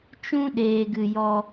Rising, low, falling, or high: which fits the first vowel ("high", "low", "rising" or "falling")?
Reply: high